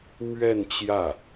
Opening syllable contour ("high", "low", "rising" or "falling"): falling